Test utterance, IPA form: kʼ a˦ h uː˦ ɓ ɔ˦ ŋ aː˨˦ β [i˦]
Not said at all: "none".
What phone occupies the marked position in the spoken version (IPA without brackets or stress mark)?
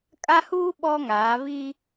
i˦